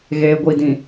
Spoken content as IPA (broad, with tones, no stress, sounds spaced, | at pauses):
ɣ eː˨ ɡʷ i˨ d ĩ˨